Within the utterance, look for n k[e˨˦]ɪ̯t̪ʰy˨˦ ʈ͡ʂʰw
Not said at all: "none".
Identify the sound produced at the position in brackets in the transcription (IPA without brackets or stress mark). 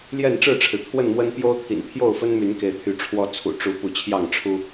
e˨˦